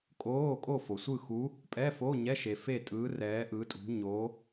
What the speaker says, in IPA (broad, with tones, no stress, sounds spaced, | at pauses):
kʼ oː˧˥˧ kʼ o˥˨ f o˨ sʷ ɯ˥˨ x u˧˥ | pʼ ɛ˧˥˧ f o˧˥˧ ɲ ɛ˧˥˧ ʃ e˨ f e˥˨ tʼ ɯː˧˥ r ɛː˧˥ ʔ ɯ˧˥ tʼ ṳ˧˥ ɲ o˧˥